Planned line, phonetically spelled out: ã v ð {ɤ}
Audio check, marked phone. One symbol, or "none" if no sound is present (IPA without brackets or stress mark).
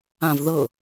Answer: ɤ